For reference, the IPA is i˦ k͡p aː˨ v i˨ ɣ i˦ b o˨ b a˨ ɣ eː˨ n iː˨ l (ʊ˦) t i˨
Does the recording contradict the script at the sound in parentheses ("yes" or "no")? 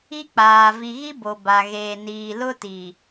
no